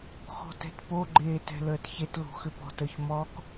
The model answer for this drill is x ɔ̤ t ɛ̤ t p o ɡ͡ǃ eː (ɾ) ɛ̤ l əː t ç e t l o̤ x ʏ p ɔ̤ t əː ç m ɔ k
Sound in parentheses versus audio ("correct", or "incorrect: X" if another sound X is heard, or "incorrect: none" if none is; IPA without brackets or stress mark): incorrect: t